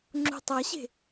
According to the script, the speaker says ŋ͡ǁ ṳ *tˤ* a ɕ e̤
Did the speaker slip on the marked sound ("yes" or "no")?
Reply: no